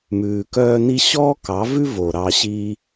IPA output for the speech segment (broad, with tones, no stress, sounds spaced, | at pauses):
m ʉː˧ k œː˦ n i˦ ɕ ɔː˦ k ɑ˨˦ v ʉ˦ v o˨ ɾ ɑ˧ ɕ i˧